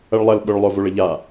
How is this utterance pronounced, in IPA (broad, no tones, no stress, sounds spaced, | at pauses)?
ɐ ɭ lˠ ɐ l ɓ ʊ ɭ lˠ o v o ɭ ə ʎ a